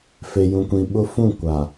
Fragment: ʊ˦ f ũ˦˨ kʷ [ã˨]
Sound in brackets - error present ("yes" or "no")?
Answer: yes